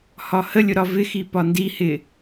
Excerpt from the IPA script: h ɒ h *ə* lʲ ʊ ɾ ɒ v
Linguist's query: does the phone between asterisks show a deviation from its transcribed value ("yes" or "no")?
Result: no